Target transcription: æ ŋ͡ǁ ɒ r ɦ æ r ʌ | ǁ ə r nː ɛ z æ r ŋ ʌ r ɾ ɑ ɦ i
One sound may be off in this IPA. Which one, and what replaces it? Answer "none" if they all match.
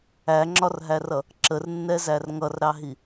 none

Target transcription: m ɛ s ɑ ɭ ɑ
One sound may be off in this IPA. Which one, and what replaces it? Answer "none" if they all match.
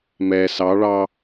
none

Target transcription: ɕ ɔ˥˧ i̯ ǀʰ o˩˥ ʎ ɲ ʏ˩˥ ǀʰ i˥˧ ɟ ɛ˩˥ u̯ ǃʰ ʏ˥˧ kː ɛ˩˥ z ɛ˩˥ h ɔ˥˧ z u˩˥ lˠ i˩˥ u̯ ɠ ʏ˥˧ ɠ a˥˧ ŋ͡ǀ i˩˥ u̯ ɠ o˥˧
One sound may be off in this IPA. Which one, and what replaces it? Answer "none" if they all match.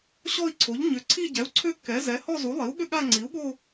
ǃʰ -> ǀʰ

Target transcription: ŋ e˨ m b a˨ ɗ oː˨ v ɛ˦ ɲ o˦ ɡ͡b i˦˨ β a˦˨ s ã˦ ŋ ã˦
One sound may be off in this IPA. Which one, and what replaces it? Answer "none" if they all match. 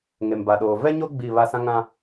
none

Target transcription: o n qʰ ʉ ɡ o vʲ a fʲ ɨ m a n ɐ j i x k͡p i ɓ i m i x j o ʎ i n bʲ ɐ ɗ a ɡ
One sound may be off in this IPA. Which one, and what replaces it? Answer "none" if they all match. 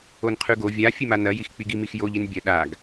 ɓ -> ɡ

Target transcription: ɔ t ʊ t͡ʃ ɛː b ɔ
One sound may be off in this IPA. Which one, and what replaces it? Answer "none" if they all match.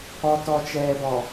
ʊ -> ɔ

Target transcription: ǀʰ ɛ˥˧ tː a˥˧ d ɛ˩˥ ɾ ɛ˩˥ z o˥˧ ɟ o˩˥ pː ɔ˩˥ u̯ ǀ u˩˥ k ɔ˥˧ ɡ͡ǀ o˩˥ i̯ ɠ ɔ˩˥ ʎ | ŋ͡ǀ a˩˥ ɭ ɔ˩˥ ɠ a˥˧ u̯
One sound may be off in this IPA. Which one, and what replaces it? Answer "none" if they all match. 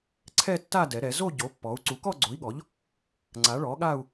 none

